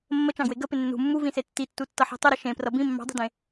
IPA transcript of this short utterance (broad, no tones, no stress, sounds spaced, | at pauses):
mː ə t͡ʃ ɑ̃ ɡ w e ɡ ə p ɪ nː ṳ mː u v ĩ s e tː i tː u tː ʌ ħ e̤ tˤ ə ɾ ə ʃ ẽ p r ʌ b ĩ mː ɑ̤ dˤ i̤ d ẽ